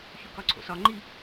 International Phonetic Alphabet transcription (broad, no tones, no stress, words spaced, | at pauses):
çukɒǀʰo̰sɒ ŋ͡ǃi